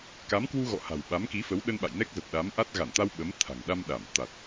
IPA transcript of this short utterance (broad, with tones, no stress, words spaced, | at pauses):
ka˨˦mkwu˧ɣɔ̰˧˨ ha̤˨˩w ɓa˨˦mki˨˦fə˨˦w ɗə˧nɓa̰˧˨jnɛ˦˥k̚ zə˨˩p̚ɗa˨˦mʔa˦˥t̚ ɣa˧˩nt̪a˧w ɓə˨˦m t̪ʰa̤˨˩ŋɗa˧mɗa˧˩m t̪a˨˩t̚